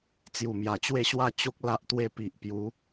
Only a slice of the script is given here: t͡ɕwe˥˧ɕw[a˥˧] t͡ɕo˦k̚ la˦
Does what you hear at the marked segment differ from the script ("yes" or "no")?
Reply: no